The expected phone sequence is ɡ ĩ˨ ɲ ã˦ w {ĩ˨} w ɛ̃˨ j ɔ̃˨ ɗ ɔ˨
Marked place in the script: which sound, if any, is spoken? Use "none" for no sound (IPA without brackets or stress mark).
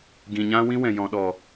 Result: ĩ˦